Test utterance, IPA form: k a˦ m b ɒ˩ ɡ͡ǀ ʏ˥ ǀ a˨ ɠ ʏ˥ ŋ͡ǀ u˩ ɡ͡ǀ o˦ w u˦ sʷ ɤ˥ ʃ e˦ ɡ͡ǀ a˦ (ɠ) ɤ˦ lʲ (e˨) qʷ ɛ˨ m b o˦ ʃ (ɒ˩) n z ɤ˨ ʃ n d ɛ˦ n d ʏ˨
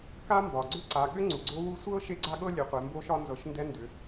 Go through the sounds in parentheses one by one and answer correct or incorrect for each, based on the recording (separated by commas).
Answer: correct, correct, incorrect